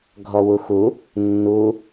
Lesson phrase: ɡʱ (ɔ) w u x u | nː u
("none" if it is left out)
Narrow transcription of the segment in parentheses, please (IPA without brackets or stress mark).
ɔ